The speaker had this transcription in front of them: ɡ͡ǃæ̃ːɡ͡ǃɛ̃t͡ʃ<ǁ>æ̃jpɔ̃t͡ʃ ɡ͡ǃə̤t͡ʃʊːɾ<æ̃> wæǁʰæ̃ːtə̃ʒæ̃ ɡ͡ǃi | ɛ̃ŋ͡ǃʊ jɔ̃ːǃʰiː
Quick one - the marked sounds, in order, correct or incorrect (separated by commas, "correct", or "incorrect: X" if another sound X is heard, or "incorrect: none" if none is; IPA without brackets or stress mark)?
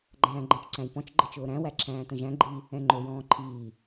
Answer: incorrect: ǀ, correct